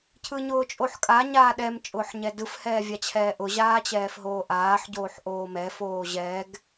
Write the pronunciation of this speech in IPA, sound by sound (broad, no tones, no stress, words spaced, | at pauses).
cʰɯɲʊːt͡ʃʼoħkʼa ɲaːɗɛm t͡ʃʼʊːħɲɛdɯf hɛːvʲat͡ɕʰɛːʔʊ ʑaːt͡ɕɛːfɦoːʔaːħ ɟoːħʔoːmɛ foːʑɛɡ